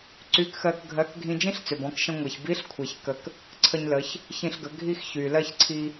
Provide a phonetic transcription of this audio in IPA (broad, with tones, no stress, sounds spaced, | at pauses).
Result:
ǀ y˧˥ k x ɜ˧ k ɡʱ ɜ˧˥ k ɡʱ ĩ˧ d͡ʒ ĩ˥ ɬ t͡s ʏ˩ b ɔ̃˩˧ k ʃ ə̃˧ ŋʷ e˩ ç b i˧˥ ɬ kʷʰ e˩ ç k ə˩ k | ǀʰ ə˧ ɲ l ə˩˧ ç | ç ĩ˧ ɬ ɡ ə˩˧ ɡʱ i˥ x ç y˩ l ɜ˥ ç ǀʰ i˧